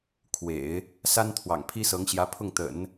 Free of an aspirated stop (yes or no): no